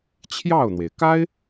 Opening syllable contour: falling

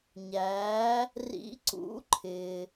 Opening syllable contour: rising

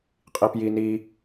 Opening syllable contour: low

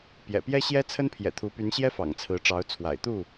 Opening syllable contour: low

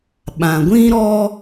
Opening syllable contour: low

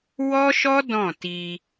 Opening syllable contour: high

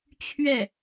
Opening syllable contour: falling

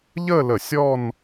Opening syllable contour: falling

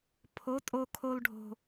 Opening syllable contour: rising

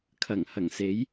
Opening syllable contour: low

